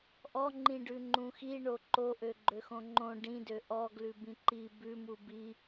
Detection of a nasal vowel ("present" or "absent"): present